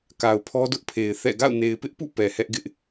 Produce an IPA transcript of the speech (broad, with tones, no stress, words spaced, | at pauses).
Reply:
ka˨ʊ̯pʰɔ˦dʊ˦ʔpʰe˨ɪ̯ θɛ̰˦˨ ɡa̰˦˨ʊ̯ne˨ɪ̯pɪ˦ʔpṵ˦˨ pɛ˨hɛ˦ʔɡɪ˦ʔ